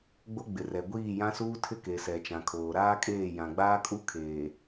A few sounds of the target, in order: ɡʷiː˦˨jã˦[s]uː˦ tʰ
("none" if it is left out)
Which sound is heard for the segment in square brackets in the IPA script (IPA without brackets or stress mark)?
s